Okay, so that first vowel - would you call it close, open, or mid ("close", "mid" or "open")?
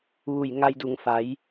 close